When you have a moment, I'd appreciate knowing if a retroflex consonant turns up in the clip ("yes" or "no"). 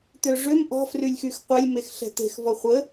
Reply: yes